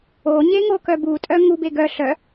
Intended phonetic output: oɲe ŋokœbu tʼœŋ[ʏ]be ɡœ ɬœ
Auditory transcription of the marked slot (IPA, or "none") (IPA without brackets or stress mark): u